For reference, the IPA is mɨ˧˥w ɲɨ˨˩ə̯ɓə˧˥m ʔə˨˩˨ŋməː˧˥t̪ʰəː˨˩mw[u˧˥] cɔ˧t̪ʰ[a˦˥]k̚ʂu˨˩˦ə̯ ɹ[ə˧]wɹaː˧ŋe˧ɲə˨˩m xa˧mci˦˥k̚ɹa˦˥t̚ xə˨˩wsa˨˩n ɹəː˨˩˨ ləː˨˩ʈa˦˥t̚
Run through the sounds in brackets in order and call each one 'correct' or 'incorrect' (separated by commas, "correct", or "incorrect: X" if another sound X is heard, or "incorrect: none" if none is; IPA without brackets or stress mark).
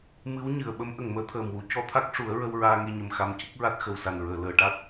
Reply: correct, correct, correct